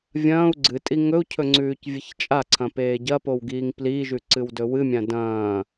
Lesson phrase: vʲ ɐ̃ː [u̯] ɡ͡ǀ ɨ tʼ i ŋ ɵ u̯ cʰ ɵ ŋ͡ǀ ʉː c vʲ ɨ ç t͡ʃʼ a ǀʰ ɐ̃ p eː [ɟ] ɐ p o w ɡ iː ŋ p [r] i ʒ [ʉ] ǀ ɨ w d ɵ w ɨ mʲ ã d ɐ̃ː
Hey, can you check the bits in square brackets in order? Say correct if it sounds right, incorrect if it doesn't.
correct, correct, incorrect, correct

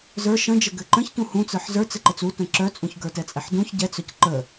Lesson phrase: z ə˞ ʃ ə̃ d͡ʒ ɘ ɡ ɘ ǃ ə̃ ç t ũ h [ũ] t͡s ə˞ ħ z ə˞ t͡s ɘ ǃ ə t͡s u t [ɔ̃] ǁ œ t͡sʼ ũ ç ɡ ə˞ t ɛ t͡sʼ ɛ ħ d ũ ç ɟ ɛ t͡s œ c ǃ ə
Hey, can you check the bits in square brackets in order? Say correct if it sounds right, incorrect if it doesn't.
correct, incorrect

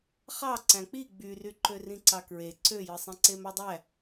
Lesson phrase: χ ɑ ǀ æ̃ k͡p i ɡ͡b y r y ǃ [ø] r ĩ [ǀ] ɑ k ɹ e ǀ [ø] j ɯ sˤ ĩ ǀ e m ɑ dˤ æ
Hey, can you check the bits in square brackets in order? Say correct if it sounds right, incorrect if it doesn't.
correct, correct, correct

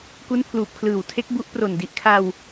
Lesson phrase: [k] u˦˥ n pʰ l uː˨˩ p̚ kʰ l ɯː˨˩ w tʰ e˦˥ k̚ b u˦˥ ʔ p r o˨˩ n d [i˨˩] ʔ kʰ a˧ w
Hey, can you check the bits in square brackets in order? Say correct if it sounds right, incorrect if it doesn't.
correct, correct

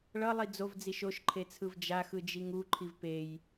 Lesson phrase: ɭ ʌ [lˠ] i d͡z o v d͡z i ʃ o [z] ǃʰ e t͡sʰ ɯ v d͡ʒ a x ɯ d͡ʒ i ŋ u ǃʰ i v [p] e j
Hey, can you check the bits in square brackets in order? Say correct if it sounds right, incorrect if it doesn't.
correct, incorrect, correct

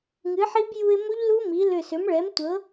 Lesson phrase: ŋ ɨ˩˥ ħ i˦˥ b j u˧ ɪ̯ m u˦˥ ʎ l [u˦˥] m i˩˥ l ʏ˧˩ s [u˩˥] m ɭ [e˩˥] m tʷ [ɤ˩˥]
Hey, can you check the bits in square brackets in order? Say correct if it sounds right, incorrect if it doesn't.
correct, incorrect, incorrect, correct

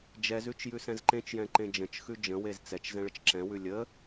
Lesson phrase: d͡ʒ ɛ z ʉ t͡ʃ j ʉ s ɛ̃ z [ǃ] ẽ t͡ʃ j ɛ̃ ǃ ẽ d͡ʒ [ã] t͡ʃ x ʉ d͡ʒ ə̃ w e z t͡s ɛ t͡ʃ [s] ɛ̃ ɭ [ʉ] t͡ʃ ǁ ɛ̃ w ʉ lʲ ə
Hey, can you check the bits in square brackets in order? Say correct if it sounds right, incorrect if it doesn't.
correct, incorrect, incorrect, incorrect

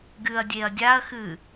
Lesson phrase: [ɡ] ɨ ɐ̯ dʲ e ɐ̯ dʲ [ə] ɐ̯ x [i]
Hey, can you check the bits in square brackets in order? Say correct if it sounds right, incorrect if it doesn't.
correct, incorrect, incorrect

